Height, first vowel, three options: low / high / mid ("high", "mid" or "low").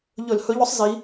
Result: mid